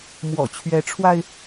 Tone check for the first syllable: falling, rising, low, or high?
low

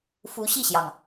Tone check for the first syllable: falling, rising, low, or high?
rising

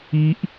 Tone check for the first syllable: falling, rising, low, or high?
high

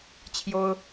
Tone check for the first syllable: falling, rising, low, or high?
high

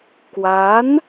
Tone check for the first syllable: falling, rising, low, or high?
rising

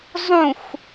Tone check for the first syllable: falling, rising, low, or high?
falling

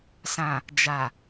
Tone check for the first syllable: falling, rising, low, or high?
low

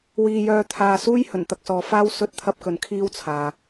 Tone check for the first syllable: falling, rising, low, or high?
low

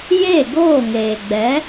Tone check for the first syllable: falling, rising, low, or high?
falling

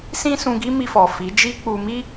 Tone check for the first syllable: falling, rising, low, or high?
high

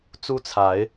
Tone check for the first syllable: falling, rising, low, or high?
high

